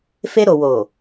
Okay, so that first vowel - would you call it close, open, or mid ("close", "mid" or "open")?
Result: mid